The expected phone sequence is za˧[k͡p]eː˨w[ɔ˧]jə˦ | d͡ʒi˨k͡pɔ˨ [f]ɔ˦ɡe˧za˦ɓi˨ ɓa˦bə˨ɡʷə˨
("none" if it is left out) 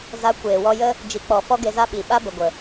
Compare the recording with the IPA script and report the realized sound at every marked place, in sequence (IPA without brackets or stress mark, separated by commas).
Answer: kʷ, ɔ˧, f